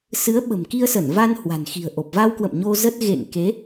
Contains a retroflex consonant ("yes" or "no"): no